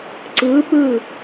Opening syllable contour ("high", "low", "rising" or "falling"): rising